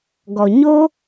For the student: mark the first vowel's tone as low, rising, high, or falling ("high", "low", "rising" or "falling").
low